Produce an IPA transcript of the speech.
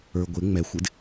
ə˞ ɡʷ ɪ ŋ͡m ɛ xʷ ɪ d

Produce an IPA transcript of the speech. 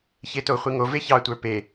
ç e t o χʷ i ŋ o v e ç ɑ tʷ ə˞ p e

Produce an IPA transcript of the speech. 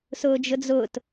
s ʊː d͡ʒ ʊ d͡z ʊː t

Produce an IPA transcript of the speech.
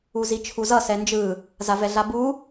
u z i t͡ʃʰ u z ʌ s ɛ n d͡ʒ ɯ | z a v ɛ ɮ a b u

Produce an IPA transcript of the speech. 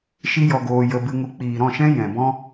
ʃ i˦ j ɔ˧ ɡ oː˧ j ə˧ b ɨ˧ ŋ u˧ k͡p iː˨ ɾ ɔ̃˦˨ ʃ ɛ̃˦ j ɛ̃˨ b ɔ̃˦

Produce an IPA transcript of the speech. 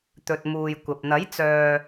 t̪ ɵ˨ t̚ m uː˨ j kʷ ɐ˨ p̚ n̪ ɐ˨˥ j t͡s œː˨

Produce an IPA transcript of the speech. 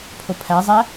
pʰ o pʰ æ zˤ æ

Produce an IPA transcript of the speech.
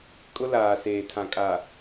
kʼ ʊ˦ l aː˨ s eː˨ tʰ ã˨ kʼ a˨

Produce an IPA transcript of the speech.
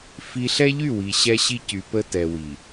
f i˦ ɬ ɛ˦ ʎ y˦˨ w i˨ ɕ ɛ˦ ɕ i˦ c y˨ p ə˦ t ɛ˨ w i˨

